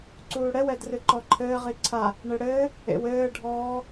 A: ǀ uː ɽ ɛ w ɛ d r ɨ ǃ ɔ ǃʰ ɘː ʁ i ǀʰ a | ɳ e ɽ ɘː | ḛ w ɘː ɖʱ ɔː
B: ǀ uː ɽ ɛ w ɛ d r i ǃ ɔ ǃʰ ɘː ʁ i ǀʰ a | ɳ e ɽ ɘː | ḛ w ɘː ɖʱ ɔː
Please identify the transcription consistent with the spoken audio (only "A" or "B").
A